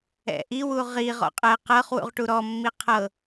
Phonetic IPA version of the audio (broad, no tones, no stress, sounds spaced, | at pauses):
ɛ̰ ʔ i w u ʁ i ʁ ɔ̰ qʼ ɛ q ɤ χ w ṵ ʁ ʈ u ɾ ɔ mː i qʰ ɤ